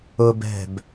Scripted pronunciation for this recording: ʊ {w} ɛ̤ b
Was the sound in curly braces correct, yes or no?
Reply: no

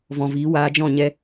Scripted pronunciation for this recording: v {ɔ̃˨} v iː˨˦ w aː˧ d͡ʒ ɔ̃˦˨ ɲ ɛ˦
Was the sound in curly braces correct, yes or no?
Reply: yes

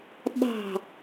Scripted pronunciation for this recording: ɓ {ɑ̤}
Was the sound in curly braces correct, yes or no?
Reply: yes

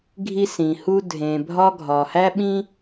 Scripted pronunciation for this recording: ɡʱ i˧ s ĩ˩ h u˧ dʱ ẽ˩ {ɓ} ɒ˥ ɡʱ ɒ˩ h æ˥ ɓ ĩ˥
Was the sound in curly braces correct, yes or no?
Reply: no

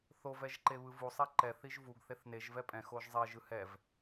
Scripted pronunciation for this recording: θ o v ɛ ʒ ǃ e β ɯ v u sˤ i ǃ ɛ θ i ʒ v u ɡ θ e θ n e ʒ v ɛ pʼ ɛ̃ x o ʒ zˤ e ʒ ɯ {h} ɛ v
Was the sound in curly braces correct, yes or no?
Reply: yes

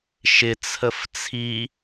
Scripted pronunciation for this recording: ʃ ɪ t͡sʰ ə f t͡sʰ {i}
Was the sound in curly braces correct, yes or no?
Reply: yes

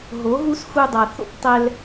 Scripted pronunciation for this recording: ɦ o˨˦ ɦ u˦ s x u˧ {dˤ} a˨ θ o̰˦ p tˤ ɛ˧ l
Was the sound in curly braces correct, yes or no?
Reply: yes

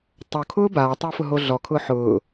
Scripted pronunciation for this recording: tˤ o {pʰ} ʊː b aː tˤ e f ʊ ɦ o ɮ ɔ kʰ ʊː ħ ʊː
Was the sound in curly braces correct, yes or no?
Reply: no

